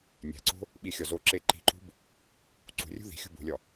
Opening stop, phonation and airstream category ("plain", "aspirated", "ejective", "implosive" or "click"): click